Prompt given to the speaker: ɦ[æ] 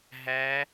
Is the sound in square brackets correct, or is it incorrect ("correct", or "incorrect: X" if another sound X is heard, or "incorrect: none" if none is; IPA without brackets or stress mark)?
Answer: correct